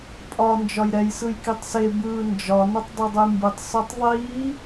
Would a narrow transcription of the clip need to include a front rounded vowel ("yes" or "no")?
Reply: no